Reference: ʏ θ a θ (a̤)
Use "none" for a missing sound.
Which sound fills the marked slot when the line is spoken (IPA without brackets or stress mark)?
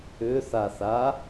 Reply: a